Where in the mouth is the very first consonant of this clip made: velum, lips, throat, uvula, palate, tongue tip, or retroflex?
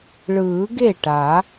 retroflex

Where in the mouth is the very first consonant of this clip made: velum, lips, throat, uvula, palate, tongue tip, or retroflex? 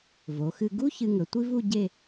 lips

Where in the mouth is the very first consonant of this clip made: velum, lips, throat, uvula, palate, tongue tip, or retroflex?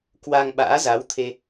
velum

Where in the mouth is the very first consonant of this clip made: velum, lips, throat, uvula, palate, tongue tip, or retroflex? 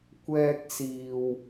velum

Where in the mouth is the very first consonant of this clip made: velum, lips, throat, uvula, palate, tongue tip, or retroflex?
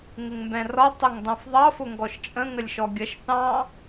velum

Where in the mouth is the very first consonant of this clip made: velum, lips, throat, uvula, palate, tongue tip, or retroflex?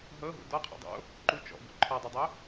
throat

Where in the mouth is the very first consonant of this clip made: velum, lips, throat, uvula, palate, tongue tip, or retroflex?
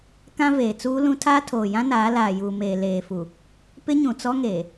velum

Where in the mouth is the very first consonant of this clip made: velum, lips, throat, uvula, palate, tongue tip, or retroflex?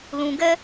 tongue tip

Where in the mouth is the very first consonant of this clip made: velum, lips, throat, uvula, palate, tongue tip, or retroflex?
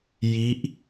palate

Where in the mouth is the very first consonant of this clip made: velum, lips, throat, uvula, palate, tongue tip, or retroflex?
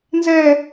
tongue tip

